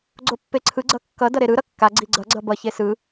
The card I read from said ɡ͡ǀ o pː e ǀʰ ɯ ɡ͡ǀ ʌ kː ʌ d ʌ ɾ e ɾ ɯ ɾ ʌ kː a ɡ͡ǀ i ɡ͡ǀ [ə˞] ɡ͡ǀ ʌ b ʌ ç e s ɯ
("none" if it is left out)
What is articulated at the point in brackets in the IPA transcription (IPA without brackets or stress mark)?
ʌ